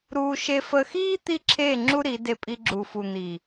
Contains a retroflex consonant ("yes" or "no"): no